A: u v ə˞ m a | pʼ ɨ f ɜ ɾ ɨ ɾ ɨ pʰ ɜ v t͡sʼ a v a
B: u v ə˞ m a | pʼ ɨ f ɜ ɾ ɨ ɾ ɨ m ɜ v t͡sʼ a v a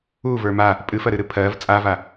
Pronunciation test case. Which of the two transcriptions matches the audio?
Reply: A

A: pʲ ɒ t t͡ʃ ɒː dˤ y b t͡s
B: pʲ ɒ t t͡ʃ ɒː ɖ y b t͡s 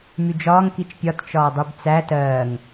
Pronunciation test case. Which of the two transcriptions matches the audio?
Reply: A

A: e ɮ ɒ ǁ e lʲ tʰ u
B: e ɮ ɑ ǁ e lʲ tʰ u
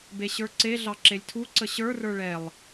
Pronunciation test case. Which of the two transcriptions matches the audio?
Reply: B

